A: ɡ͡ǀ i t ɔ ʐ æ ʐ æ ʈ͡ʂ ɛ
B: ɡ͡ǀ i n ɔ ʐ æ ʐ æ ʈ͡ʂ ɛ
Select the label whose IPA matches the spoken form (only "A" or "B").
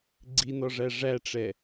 B